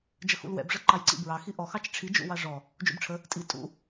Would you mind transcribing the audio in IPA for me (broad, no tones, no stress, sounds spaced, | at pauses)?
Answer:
d͡ʒ ə x ṵ l w ɛ̰ b ʐ ə ǃ ɑ j ǀ ḭ b ɹ ɑ x i ʔ ɔ x ɑ t͡ʃ ʈ͡ʂʰ i d͡ʒ ṵ w ɑ ʐ ɔ | d͡ʒ ṵ b ʈ͡ʂʰ ə | tʼ i tʼ ṵ